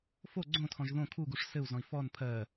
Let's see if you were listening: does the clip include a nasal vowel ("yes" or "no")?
yes